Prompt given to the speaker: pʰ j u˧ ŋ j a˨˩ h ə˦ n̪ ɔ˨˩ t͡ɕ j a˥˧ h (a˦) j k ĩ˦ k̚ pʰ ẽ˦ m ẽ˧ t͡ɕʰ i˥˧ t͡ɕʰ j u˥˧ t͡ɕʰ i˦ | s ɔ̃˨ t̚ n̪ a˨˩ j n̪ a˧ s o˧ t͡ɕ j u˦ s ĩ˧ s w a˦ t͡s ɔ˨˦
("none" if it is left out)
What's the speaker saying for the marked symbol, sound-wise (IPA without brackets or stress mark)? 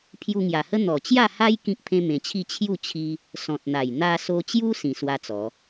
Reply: a˦